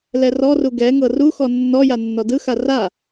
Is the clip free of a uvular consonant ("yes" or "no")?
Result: yes